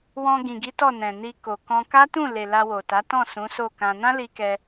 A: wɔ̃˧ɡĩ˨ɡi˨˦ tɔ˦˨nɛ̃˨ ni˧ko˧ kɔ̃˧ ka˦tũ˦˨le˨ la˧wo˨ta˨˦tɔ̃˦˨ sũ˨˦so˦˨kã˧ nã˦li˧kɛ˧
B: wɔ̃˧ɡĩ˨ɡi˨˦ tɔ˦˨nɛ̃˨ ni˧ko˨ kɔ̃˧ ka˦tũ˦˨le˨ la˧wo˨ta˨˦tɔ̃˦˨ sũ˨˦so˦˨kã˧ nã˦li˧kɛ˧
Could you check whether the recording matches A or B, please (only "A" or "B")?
B